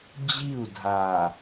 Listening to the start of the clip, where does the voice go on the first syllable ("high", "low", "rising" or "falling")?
falling